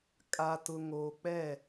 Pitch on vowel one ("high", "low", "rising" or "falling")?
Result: low